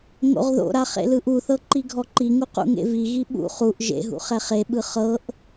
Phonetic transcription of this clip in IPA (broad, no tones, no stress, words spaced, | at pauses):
ŋo̰ʁðo̰ɾa χḛlɯʔuθɤ ǃiɡʱɔǃiŋu qṵŋḛviɣi ɓṵ χuʔ ʒḛɦṵ χɛχeɓɯ χɤʔ